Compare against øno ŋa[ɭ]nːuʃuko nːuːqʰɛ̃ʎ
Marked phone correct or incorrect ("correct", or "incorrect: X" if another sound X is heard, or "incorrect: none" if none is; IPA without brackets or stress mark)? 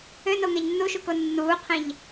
incorrect: ʎ